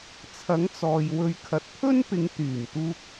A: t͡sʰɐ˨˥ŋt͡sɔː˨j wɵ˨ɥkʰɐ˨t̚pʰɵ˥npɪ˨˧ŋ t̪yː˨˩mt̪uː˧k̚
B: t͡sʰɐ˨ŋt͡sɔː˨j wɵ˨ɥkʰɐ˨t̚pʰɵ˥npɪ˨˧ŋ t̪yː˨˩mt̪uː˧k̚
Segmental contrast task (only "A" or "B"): A